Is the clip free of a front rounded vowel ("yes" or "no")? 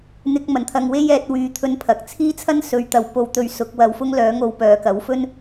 no